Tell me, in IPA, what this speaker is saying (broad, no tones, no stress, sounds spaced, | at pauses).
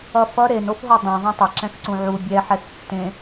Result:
ʌ f ʌ ɾ e n o f ɦ o dˤ ɛ̃ ðˤ ɛ̃ tˤ ʌ ǁ ɛ̃ x ǀ ũ ʕ u bʲ ɛ ħ ɛ x tː ẽ